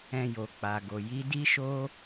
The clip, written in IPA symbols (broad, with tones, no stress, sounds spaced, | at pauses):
ɛ̃˧ j o˨ k͡p a˨ ɡ o˨ j i˨˦ d i˦ ʃ o˦